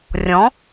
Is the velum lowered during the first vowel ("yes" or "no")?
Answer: yes